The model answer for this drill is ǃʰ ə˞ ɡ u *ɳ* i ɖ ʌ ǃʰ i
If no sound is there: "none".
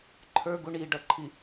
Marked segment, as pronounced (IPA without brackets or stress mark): ɳ